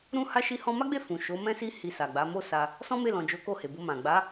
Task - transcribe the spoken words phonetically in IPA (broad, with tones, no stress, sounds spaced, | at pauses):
ɾ ũ˦ h a˦ ʃ i˦ h ɔ̃˦ m a˦ ɡ͡b e˦˨ f ũ˨ ʃ o˨˦ m ɛ̃˦ s i˦ h i˧ s a˨ ɡ͡b a˨˦ m o˦ s a˧ | s ɔ̃˦ m e˦˨ l ɔ̃˨ d͡ʒ o˨˦ k o˦˨ h e˨ b o˧ m ã˨ ɡ͡b a˨˦